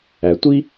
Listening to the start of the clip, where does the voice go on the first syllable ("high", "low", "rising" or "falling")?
low